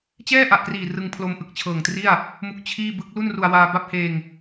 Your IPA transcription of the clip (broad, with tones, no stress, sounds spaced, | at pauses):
t͡ɕ ɛː˥˩ ʔ a˨˩ ʔ k r iː˨˩ r ɯ˧ ŋ pʰ l o˧ m ʔ ɯ˨˩ k̚ t͡ɕʰ ɤː˨˩ ŋ t r i˥˩ a̯ | m u˥˩ k̚ t͡ɕʰ iː˥˩ b ɯ˦˥ k̚ l u˥˩ n r u˧ a̯ w aː˧ b a˥˩ p̚ h eː˧ ŋ